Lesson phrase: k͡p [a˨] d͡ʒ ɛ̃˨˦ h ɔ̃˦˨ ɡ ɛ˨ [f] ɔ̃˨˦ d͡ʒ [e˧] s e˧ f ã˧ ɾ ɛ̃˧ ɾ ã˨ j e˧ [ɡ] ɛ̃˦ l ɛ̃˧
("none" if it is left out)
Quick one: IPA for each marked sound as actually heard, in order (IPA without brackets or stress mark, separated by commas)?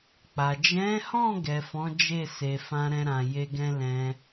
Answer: a˨, f, e˦˨, ɡ